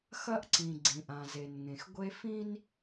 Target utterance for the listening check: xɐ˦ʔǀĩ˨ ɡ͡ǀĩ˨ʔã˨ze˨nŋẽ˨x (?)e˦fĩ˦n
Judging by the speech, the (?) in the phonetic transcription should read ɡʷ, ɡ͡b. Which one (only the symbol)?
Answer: ɡʷ